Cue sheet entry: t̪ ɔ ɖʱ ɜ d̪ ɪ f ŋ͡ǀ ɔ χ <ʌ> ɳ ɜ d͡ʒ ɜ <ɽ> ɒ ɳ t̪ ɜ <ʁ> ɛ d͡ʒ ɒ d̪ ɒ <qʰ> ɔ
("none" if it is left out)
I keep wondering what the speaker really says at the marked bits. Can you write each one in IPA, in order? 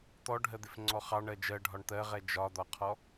ɑ, ɖʱ, ʁ, qʰ

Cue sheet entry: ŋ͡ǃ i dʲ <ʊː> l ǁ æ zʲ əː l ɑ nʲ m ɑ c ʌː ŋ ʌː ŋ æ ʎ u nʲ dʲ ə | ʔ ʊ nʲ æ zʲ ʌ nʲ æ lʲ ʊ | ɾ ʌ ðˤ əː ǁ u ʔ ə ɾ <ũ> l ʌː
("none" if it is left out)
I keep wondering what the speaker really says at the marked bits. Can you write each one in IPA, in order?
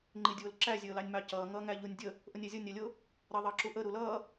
ʊː, u

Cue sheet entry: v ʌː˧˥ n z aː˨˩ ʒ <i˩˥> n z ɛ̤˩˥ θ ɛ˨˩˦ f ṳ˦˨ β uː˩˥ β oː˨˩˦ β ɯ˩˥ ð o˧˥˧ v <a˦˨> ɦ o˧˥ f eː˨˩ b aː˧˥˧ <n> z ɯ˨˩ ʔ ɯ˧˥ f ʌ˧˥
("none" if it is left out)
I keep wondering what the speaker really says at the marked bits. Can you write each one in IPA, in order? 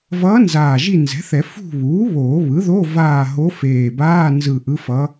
i˦˨, aː˦˨, n

